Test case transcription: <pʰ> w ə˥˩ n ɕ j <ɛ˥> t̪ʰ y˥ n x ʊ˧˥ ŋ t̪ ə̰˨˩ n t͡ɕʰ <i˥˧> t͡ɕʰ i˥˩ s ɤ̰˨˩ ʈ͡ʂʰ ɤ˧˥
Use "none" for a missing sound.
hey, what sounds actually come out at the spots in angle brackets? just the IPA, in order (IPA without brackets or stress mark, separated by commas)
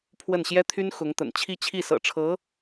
pʰ, ɛ˥, i˥˧